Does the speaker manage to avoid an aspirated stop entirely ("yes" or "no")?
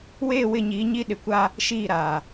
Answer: yes